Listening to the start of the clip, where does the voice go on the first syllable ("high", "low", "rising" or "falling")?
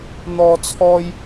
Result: high